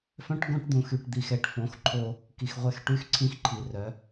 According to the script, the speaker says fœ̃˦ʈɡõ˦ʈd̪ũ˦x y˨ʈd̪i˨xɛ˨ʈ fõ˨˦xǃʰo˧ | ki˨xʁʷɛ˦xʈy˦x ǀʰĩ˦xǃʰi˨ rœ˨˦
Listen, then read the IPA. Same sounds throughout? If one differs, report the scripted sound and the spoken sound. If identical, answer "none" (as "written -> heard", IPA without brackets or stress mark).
ũ˦ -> ũ˨